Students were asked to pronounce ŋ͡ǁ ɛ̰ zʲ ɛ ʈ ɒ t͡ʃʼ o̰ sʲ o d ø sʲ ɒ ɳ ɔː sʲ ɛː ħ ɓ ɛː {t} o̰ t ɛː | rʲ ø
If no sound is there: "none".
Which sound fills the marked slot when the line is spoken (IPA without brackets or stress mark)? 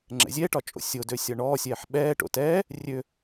ʈ